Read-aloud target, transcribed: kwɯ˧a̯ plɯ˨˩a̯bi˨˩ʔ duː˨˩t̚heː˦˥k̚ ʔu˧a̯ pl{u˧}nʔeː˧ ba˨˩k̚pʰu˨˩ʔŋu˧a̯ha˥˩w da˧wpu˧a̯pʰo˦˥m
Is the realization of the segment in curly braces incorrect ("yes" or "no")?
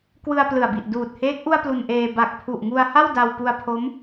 no